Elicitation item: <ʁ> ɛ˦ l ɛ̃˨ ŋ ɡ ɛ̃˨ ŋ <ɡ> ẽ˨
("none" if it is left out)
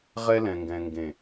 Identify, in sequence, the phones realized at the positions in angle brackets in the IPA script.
ʁ, ɡ

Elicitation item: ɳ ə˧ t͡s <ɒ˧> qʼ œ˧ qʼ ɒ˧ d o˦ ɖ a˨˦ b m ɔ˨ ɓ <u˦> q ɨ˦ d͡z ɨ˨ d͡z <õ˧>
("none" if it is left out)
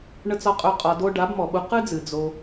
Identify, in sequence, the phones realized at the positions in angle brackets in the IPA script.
ɒ˧, u˧, o˧

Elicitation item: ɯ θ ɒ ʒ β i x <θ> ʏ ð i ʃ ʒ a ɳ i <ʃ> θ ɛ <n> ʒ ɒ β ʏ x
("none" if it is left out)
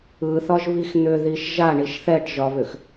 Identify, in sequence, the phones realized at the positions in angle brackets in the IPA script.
n̪, ʃ, ʈ

